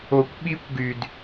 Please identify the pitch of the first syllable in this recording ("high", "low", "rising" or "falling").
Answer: low